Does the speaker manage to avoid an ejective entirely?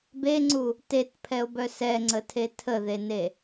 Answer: yes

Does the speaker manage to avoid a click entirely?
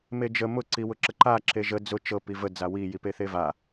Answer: no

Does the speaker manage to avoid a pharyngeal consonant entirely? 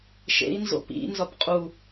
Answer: yes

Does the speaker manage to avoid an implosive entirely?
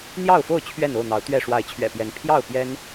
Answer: yes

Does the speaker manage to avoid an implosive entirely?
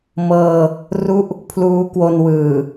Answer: yes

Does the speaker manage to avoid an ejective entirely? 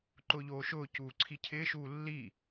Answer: yes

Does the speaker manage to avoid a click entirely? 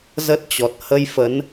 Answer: yes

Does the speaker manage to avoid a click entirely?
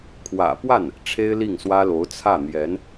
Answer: yes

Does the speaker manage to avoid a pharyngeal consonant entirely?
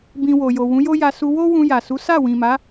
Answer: yes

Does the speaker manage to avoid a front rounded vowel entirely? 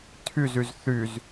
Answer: no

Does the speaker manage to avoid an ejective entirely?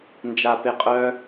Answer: no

